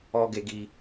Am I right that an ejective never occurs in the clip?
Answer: yes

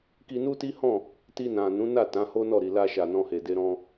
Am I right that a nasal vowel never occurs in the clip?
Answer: no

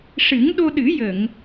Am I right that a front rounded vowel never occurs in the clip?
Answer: yes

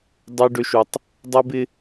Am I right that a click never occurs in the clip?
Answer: yes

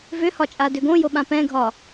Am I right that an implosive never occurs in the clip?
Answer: no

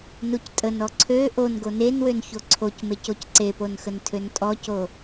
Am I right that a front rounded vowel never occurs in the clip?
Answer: no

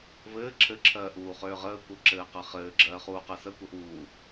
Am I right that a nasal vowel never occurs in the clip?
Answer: yes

